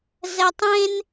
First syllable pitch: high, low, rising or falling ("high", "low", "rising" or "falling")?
high